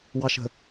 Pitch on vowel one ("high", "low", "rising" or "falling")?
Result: low